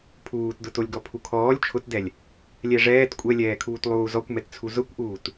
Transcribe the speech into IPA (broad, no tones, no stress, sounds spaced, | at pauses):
pʰ uː t d ʊ t o lʲ ɡ ɔ pʰ u kʰ ɔː lʲ t͡ʃʰ ʊ t d ɛ lʲ | lʲ ɛ ʐ ɛː t kʷʼ ɛ lʲ ɛː kʰ uː t lˠ uː z ɔ kʷ m ɛ t t͡sʰ u z ʊ kʷ ʔ uː t